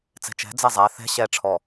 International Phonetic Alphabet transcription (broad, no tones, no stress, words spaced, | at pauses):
t͡sɛ̤t͡ʃɛ̤ d͡zɛzˤæ θɛ̤ ɕɛ ʈ͡ʂʰɔ